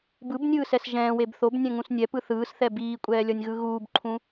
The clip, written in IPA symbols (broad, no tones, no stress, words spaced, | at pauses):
bɯbnʲɯːsɛs ʒɛ̃ːweb θobnʲɛ̃ŋũs nʲɛpɯ θɯːsθɛ biːkʷʼɛːlʲʌnʲɣɯ ɣuːbǃʰũ